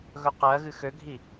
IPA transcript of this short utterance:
ɣ ɵ q ɜ ɣ ɨ x ø ɡʱ i

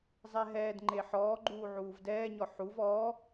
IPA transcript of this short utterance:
zˤ ɛ ɦ ɛː d ŋ͡ǃ e ħ ɔː ɡ͡ǃ uː ʕ uː v d ɛː ɲ ɔ ħ u v ɔ

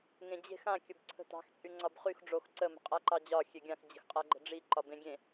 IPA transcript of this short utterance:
ŋ ẽ d͡ʑ e̤ x ã kʲ ə b ǀʰ ə̤ t ɑ̤ x t͡sʼ y ŋ͡ǀ ɒ b χ y x ɖ͡ʐ o x ǀ ə m ə̤ qʼ a ǃ ɑ d͡ʑ ɒ xʲ e ɡʲ ã x d͡ʑ ə̤ x qʼ a ɡ͡ǃ ə̤ ɖ͡ʐ i ǃ ɒ b ẽ ɡʲ ẽ

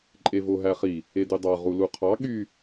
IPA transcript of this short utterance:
ǃʼ e v o ɦ æ χ i | e d y dˤ ɑ ʁ u l u qʰ ɑ ɠ y

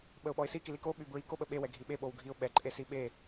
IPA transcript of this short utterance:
ɓ ə ʊ̯ ɓ ɔ ɪ̯ s i k i l i k o ɓ y b ɹ i k o ɓ ə ɓ e w ɛ ɡʱ i ɓ e ɓ o w ɡʱ i ʊ̯ ɓ ɛ ǃʼ e s i ɓ e

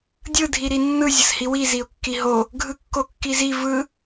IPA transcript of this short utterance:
dʲ ɯ dʱ i ɾ i nː ɯ zʲ ə s h i w i z i ʊ̯ kː i ɦ o | ɡʱ ɯ kː o kː i z i v ɯ

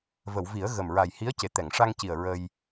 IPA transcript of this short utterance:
v ə˨˩˨ w v i˨˩˦ ə̯ ɣ ə˨˩ m ɹ a˨˩ j h i˧˥ ə̯ c e˨˩ t̪ ɛ˨˩˨ ŋ ʂ a˧ ŋ c i˨˩ ə̯ ɹ ə˧ j

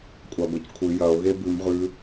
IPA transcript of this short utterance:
kʷʼ a ɡʷ ɐ c kʷʰ ɨ j ɐ o̯ ɣ e b ʉ m ʁ ʉ

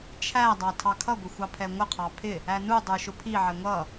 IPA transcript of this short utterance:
t͡ʃʰ æ dˤ ɑ tʰ ɑ kʰ ʌ ɡʷ ɪ xʷ ɑ pʰ ɛ ŋʷ ə qʰ ɑ pʰ ɪ | æ n u dˤ ə˞ ʃ ʊ pʰ i ʕ ɛ ŋʷ ʌ

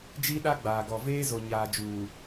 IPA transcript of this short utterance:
d͡ʒ i˦ ɗ a˦ ɡ͡b aː˨ ɡ ɔ˨ v eː˦ z o˨ ɲ aː˨ d͡ʒ uː˨

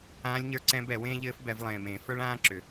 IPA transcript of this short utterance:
ãː˧˥ lʲ ɲ ə˞˧˥ ǀ ɛ̃˧˥ b ɛ˨˩˦ w ẽː˥ ʎ ɘː˧˥ f b ɛ˨˩˦ v lˠ ẽː˨˩ m ẽː˨˩˦ f ə˞˥ ɭ ãː˥ ǁ ʏ˨˩

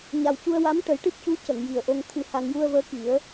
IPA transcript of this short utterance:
ɲ a˨˩ w c u˧ ə̯ w a˧˥ m ʈ ə˨˩˦ j ʈ ɨ˦˥ p̚ c u˧˥ c ə˨˩˨ ŋ j i˨˩ ə̯ ʔ o˧ ŋ t̪ʰ ɨ˧ h a˧ ŋ j u˧ ə̯ v əː˧˥ k i˨˩˦ ə̯

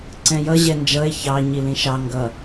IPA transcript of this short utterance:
ǀ ɛ̃ j ʌ ʑ ɛ n d͡ʒ ʌ e̯ ç ɑ ɲ i l ĩ ʃ ɑ ŋ ɡ ʌ

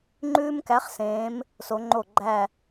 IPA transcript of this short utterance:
ŋ͡ǃ ʉː˦ m k æ˨˥ χ s ẽː˩˧ m | s o˩˧ ŋ͡ǃ o˧˩ ɡ͡ǃ æ˧˩

